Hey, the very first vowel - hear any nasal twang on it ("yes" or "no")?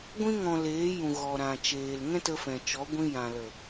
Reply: yes